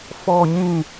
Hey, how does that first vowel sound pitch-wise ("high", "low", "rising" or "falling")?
low